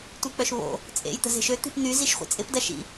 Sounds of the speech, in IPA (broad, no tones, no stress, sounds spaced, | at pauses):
tʷ i k͡p œ ʃ β o̰ | t͡sʼ ḛ j t̪ ə̤ z e̤ ʃ ø t̪ i̤ p n̪ y z i ʃ χʷ ḛ t͡sʼ ɪ p d ɐ ʃ ḭ